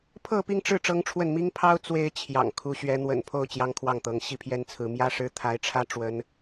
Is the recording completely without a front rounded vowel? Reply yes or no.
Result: yes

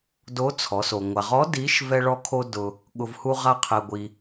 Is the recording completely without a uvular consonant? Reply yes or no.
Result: no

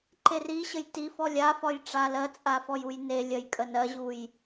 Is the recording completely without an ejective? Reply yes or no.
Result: no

